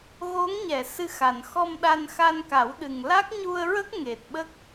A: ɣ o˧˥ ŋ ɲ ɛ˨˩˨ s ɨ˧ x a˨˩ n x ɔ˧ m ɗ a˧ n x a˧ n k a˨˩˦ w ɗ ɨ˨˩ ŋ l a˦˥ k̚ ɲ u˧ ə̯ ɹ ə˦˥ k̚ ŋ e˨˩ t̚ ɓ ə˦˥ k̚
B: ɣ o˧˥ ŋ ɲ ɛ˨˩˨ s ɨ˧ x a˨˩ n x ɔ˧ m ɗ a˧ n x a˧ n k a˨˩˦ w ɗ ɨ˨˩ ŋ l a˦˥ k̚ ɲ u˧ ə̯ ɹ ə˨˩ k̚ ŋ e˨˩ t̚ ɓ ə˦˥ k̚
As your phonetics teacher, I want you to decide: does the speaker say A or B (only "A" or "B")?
A